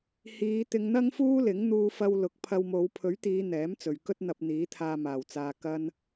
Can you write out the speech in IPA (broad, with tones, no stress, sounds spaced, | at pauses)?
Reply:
h iː˨˧ t̪ ɪ˧ ŋ n̪ ɐ˥ ŋ f uː˥ l ɪ˨˥ ŋ n̪ uː˧ f ɐ˧ w l ʊ˨˥ k̚ pʰ ɐ˧ w m o˨˧ w pʰ ɵ˨˥ ɥ t̪ iː˨˧ n̪ ɛː˨˥ m t͡s ɵ˨ ɥ k ɵ˥ t̚ n̪ ɐ˧ p̚ n̪ iː˨˥ t̪ʰ aː˧ m aː˨˩ w t͡s aː˨ k ɐ˧ n